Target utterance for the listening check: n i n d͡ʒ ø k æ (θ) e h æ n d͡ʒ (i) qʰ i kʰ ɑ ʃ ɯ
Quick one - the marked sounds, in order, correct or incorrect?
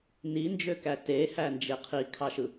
incorrect, incorrect

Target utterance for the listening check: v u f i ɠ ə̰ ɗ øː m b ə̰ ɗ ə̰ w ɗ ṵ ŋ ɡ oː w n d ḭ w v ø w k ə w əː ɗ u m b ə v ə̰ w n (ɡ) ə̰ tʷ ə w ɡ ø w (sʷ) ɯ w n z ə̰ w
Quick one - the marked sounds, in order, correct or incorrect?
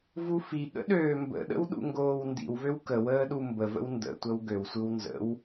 incorrect, correct

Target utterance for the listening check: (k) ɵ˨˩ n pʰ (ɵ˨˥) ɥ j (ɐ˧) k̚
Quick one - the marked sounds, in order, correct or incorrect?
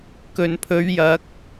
correct, incorrect, incorrect

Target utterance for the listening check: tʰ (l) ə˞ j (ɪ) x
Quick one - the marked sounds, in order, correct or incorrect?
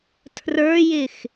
incorrect, correct

